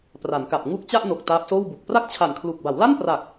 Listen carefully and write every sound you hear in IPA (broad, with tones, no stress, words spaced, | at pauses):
pra˩˦nka˨˩p̚ ŋu˦˥k̚ t͡ɕa˥˩ʔno˨˩k̚ taː˦˥p̚soː˥˩wbu˨˩k̚ pra˥˩k̚t͡ɕʰa˨˩nkʰlu˨˩k̚ ba˩˦w la˥˩npra˨˩k̚